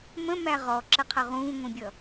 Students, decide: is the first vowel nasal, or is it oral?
nasal